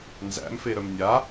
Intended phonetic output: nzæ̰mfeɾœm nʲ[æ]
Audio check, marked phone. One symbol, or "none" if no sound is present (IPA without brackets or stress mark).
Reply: a